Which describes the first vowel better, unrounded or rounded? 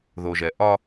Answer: rounded